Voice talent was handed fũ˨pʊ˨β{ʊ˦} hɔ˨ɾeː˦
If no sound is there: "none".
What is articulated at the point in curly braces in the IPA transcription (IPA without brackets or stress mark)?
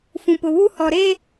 u˦